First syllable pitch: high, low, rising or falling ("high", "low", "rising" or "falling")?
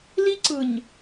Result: high